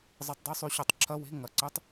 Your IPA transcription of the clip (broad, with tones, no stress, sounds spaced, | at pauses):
zˤ ɨ˨˥ tˤ dˤ ʉ˧˥˧ sˤ ʉ˦˨ ɕ o˧˩˧ tˤ ǁʰ ɐ˧˥˧ w e̤˧˥˧ ŋ ɐ˩˧˩ ǀ ɨ˧˥˧ tˤ